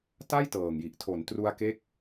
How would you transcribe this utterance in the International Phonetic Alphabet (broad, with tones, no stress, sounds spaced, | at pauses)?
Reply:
t a˥˩ j t ɤː˨˩ ŋ j i˨˩ ʔ tʰ o˩˦ n t r u˧ a̯ k e˦˥ k̚